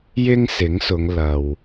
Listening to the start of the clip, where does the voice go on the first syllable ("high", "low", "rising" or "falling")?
high